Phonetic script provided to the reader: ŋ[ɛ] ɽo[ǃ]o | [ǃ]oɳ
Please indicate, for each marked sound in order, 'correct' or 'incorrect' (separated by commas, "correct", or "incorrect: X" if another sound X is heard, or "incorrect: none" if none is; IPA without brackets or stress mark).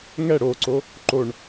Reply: correct, incorrect: ǀ, correct